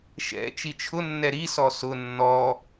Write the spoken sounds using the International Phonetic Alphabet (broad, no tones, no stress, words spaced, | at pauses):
ʃɛ̰ t͡ʃit͡ʃʰʊnːɛ ɾisɔ sʊ nːɔ